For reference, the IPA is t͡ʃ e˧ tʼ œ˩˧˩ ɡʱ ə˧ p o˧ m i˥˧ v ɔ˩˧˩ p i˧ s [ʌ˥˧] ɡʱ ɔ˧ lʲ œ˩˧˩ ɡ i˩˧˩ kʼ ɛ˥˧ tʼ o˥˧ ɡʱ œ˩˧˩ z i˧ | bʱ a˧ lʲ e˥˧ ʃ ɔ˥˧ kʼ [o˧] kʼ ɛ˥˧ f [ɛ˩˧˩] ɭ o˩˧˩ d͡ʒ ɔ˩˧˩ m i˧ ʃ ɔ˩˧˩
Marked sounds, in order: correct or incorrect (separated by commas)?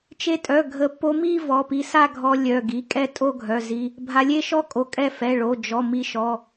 incorrect, correct, correct